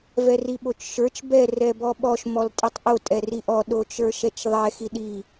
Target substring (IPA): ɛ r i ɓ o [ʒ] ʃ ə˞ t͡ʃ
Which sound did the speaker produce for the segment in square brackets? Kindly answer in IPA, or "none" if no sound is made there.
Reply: t͡ʃ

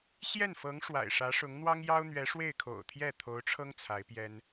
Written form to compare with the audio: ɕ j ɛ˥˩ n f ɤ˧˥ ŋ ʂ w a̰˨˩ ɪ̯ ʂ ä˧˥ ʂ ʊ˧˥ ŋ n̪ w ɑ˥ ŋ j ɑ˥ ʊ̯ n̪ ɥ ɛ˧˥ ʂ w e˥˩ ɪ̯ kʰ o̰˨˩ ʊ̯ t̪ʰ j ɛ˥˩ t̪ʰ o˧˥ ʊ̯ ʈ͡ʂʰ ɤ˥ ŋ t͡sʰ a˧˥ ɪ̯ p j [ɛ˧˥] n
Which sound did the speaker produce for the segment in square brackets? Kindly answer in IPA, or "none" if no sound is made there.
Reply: ɛ˥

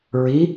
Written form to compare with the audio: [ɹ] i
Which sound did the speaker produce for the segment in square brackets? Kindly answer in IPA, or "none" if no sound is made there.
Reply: ɹ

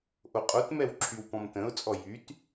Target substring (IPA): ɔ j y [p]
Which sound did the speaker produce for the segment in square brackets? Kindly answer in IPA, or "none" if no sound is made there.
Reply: t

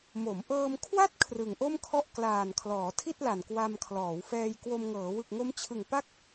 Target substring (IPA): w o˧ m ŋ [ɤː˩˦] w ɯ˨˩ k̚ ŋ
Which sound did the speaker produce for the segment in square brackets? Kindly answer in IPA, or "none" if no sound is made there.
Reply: ɤː˩˦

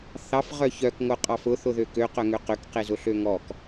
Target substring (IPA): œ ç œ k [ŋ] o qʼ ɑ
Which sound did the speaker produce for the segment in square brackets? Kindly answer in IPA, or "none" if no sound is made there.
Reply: ŋ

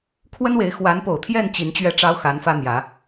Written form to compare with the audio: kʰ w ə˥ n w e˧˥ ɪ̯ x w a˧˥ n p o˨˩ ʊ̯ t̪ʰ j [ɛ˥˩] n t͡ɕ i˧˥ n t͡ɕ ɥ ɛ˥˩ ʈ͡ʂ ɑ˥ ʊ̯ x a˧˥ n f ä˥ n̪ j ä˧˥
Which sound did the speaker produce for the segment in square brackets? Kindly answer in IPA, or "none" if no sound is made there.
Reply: ɛ˥˩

